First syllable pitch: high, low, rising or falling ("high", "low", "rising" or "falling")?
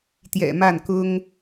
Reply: low